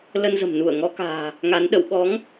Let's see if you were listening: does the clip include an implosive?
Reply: yes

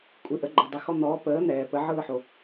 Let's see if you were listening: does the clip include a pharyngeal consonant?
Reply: yes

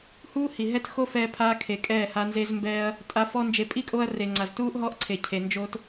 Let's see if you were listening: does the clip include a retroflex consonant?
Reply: no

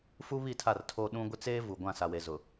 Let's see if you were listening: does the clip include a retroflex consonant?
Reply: no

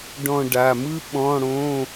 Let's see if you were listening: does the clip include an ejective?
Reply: no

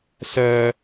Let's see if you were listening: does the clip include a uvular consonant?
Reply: no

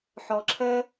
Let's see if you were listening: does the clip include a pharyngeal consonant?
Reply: yes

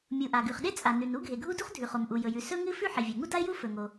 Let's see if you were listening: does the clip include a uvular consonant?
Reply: yes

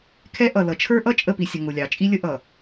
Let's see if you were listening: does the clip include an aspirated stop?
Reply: yes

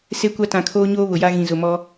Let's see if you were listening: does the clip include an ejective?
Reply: no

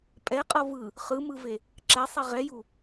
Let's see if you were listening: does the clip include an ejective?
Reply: yes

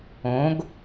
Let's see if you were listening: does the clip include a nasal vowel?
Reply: yes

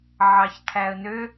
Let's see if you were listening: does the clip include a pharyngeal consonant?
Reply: yes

